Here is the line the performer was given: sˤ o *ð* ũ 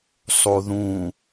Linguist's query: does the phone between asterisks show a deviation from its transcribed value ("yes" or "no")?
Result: no